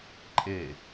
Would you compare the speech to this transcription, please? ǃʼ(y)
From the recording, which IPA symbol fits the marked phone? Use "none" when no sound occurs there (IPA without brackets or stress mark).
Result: e